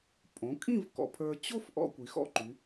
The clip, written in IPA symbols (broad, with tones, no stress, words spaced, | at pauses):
pʼõ˩˧kʼĩ˥˧v kɔ̰˧pʰə˞˧ t͡ɕo˥f ʔɔ̰˧ kʷi˩˧xɔ̰˥˧ǃy˩˧